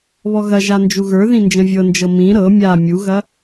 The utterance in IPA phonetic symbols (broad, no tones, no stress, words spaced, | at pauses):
βɔɣɐʒa nd͡ʒuɣə˞ðĩ nd͡ʒə̃vʲɤnd͡ʒɤ mĩ ɾɤ mʲa mʲuɣɐ